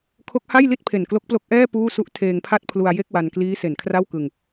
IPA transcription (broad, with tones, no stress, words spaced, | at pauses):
kʰo˦˥k̚ha˥˩jli˥˩t̚pʰe˨˩n klo˦˥k̚plo˦˥k̚ ʔɛː˥˩ puː˥˩su˥˩ʔ tʰeː˧ŋpʰa˥˩t̚pʰlu˧a̯ je˥˩k̚wa˧nkliː˦˥ se˩˦nkʰra˥˩wkɯ˧ŋ